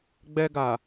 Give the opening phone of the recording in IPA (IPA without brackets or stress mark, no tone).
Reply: ɡ͡b